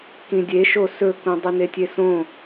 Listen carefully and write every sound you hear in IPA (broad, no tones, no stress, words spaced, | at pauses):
kĩdʲeʃo sɵkũ dˤɨnetʲesõ